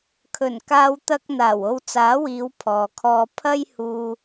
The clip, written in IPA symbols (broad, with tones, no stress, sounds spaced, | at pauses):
kʰ ɵ˨˩ n k aː˧ w t̪ ɐ˥ k̚ n̪ aː˨˩ w o˧ w t͡s aː˨˥ w iː˨˧ w pʰ ɔː˨ kʰ ɔː˧ pʰ ɐ˥ j h uː˧